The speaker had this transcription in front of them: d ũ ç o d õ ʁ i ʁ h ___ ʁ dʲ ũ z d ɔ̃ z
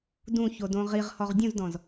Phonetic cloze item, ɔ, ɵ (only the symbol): ɔ